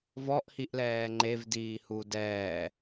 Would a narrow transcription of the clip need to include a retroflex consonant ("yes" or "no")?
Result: no